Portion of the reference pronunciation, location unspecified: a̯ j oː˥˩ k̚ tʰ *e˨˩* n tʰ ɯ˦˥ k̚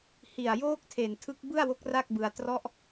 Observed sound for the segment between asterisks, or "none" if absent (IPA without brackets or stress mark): e˨˩